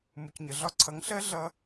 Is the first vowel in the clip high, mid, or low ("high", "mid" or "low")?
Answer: high